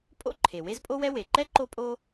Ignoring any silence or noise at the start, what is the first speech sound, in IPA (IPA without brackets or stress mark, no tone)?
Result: pʼ